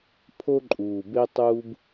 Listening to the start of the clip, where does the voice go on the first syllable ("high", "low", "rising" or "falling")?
high